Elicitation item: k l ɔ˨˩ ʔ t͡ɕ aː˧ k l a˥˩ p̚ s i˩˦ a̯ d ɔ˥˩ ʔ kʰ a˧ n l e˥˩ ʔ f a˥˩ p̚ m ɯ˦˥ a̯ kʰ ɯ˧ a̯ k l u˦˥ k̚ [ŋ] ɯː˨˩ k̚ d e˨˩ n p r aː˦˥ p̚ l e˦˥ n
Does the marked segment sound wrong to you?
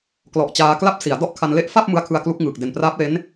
no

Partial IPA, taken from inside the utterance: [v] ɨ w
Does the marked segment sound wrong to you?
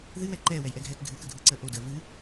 yes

